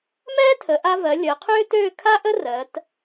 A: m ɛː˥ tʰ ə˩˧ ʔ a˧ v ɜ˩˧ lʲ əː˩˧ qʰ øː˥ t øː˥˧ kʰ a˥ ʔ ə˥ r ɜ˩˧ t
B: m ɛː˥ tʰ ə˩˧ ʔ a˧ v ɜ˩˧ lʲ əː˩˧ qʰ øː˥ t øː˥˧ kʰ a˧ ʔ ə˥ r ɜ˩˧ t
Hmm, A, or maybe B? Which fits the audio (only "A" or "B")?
A